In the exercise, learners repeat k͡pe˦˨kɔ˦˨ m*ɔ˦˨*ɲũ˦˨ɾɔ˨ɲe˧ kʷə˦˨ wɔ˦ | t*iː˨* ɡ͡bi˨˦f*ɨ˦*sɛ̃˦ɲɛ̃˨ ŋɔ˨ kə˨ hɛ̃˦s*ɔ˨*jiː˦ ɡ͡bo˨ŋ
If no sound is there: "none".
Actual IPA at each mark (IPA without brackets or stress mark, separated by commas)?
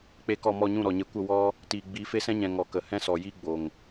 ɔ˦˨, iː˨, e˦, ɔ˨